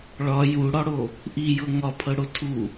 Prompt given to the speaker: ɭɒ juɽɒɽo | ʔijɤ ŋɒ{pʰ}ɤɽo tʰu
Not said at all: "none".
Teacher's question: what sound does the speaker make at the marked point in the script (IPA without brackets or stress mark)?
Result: pʰ